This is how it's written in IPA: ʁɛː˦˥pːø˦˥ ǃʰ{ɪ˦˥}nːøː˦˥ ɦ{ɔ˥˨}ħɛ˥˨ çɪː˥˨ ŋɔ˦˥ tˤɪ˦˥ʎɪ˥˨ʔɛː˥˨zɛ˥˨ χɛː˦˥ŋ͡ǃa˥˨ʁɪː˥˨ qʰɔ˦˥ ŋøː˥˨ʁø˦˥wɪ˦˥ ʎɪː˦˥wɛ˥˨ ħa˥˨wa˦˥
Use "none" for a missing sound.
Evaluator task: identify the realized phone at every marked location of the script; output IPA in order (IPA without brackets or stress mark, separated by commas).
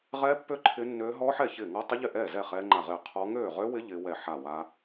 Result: ɪ˦˥, ɔ˦˥